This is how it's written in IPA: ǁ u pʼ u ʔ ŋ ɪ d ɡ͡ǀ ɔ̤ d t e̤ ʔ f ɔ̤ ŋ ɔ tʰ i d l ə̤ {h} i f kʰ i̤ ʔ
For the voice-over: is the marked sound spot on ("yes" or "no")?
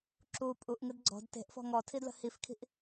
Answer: yes